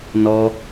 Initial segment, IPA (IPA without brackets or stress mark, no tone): n